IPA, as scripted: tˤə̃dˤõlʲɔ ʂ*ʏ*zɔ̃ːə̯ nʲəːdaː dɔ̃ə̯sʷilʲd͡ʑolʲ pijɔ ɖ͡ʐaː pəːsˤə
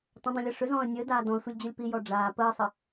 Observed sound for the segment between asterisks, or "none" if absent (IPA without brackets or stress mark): ʏ